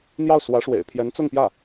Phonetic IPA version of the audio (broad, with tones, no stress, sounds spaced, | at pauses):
n̪ j ɑ˥˩ ʊ̯ s w ä˧˥ ʂ w ḛ˨˩ ɪ̯ pʰ j ɛ˧˥ n t͡s ʊ˥˧ ŋ p j ä˥˩